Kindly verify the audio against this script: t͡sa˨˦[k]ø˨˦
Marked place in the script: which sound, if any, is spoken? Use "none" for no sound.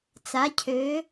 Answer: cʰ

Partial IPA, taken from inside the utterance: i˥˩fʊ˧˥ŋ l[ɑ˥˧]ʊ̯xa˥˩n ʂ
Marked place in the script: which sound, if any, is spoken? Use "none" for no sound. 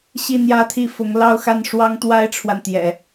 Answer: ɑ˥˧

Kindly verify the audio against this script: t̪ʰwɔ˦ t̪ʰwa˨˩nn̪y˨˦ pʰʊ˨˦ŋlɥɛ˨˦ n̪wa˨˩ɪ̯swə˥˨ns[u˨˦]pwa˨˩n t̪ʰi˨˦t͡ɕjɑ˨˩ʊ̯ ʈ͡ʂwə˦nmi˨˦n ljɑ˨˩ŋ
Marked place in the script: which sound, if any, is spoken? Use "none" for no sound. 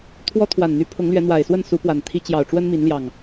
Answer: u˨˦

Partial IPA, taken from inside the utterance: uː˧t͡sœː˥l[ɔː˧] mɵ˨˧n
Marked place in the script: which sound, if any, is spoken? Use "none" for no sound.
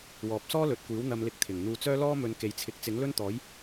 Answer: ɔː˥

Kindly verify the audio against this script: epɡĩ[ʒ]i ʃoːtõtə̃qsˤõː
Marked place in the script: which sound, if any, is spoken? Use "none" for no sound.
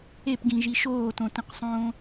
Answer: ʒ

